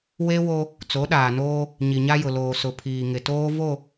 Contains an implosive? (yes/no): yes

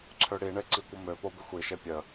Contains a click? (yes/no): yes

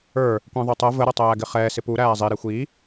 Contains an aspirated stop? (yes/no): no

